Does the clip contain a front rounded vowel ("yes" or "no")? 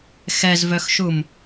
yes